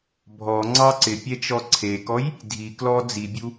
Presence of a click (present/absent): present